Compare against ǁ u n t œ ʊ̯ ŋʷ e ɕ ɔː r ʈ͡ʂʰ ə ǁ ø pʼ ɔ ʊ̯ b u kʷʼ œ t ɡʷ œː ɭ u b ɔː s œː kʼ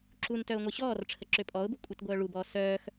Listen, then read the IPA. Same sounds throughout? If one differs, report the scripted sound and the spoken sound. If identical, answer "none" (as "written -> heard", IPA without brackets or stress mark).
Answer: kʼ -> x